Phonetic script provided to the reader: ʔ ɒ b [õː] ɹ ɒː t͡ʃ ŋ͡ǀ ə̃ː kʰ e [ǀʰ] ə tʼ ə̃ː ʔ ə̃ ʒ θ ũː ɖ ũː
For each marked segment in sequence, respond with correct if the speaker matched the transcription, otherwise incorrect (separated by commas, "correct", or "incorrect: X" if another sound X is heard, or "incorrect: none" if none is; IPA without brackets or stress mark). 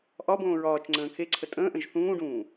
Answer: correct, correct